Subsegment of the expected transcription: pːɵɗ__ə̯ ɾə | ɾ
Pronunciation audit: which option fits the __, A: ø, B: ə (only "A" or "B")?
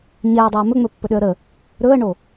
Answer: A